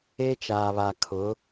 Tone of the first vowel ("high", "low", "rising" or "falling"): high